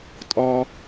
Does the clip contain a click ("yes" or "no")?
no